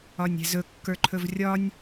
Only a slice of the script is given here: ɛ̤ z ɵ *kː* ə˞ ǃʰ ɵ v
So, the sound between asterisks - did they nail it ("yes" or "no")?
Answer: yes